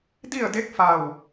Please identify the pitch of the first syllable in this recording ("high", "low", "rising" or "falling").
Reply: falling